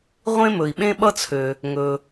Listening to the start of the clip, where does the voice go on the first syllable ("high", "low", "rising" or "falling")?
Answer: high